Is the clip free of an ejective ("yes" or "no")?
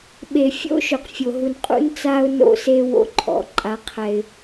no